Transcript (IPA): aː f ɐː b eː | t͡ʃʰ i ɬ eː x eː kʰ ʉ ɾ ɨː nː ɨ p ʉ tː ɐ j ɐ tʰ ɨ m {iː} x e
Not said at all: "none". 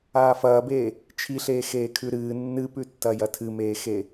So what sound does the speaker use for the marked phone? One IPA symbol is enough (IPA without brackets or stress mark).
eː